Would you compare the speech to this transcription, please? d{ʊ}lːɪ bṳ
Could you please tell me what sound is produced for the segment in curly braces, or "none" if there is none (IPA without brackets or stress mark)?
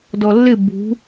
ɔ